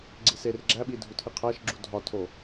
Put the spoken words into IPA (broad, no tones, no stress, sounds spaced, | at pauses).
ɡ͡ǀ i s e r ɡ͡ǁ æ ɓ i dʱ u tʰ i qʰ æ ʃ ɡ͡ǁ u dʱ ɒ tʰ o